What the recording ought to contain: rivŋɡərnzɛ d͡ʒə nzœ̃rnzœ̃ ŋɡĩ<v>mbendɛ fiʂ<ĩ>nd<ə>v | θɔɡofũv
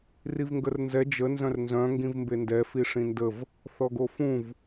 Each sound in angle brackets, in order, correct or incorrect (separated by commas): correct, correct, correct